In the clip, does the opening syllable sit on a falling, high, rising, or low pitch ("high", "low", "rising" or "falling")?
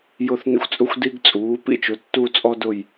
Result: falling